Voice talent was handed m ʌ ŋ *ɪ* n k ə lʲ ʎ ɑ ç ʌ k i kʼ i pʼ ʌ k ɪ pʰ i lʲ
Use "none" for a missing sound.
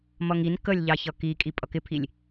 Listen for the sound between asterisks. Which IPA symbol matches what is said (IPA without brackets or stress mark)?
i